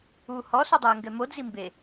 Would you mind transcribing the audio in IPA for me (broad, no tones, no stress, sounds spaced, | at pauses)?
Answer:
uː h ɔ s u dˤ ɛː ŋ ɡ ɛ m o d͡z i m b e